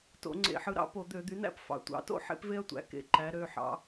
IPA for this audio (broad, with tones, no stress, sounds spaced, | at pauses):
t o̰˧˩˧ ŋ͡ǀ ḛ˧˩˧ ħ ɯ˩˥ ɾ ɑ̰˩˥ p o˧˩˧ d̪ ø˧˩˧ d̪ y˩˥ n æ̰˥ p f ɑ̰˩˧ tʷ ɑ̰˩˥ t o̰˥ ħ ḛ˥ p v e˥ ɐ̯ tʷ æ̰˩˥ k ḛ˧˩˧ ǃ æ˩˧ ɾ ø˩˧˩ ħ ɑ̰˩˧